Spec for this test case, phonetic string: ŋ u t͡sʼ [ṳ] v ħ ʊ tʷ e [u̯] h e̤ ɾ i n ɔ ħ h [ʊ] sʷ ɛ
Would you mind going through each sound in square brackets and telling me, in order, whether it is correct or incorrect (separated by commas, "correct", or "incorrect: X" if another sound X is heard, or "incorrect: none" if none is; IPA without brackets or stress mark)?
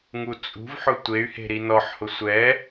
correct, incorrect: y̯, correct